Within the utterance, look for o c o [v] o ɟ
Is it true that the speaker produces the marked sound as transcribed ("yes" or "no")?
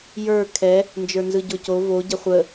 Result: yes